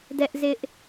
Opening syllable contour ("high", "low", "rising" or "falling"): high